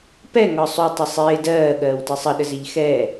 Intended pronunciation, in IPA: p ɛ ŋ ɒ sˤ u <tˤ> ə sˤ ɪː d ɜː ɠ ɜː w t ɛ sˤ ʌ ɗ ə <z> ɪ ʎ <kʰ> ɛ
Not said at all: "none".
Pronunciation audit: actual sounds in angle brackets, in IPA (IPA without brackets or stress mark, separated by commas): tˤ, z, x